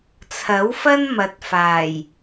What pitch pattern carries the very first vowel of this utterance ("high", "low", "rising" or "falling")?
rising